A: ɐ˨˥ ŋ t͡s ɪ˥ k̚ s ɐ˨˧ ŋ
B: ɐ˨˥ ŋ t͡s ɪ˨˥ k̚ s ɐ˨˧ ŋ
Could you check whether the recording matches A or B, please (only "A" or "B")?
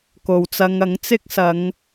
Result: A